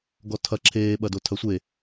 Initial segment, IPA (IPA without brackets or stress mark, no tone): ɡ